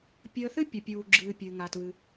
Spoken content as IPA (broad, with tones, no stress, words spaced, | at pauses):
pʲəː˧θɨ˥ pʲə˩pʲuː˩ɡ͡ǁɨː˩ pʲɨ˩ŋa˩tβɨ˩